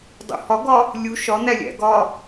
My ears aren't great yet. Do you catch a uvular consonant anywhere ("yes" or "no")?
no